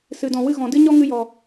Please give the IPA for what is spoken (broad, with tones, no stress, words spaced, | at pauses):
sɨ˨dɔ̃˨wɨ˧ ɣɔ̃˨dɨ˦ ɲɔ˦ŋɨ˧jɔ˨